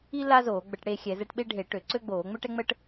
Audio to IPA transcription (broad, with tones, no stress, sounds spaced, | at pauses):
i˥ l a˥ z oː˧˩˧ ɡ͡b ə˧˩˧ ʈ ɽ e˦˨ xʲ ɛ˧˩˧ z ɛ˦˨ ʈ ɓ e˥ ɖʱ e˧˩˧ ʈ ø˧˩˧ ǀ ø˥ ɡ͡b oː˧˩˧ ŋ͡m ø˥ ʈ ɛ˥ ŋ͡m ə˥ ʈ